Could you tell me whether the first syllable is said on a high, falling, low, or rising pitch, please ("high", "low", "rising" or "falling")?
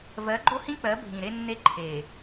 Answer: rising